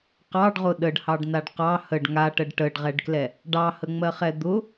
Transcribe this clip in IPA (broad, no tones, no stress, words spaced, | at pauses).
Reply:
qɑɖʁʊ ɗəɖhɑɖnaɖ qɑ həɖ ŋaʈəɖ ʈəɖʁɛɖklɛ | ɖɑhəŋ͡mɜχɛ d̪ʊ